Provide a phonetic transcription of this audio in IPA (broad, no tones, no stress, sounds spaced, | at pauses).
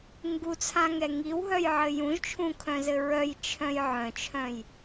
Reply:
ŋ ɡ u t͡sʰ ã ŋ ɛ ŋ i w ɦ œ j ʕ ɘ j ũ ʒ t͡ʃʰ ũ kʰ œ̃ z ɘ ɹ œ j t͡ʃʰ œ̃ j ʕ œ̃ t͡ʃʰ œ̃ j